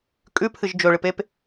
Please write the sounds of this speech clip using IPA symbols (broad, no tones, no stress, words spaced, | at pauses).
kʼʉpʰɨʒ d͡ʒɵɭɨpep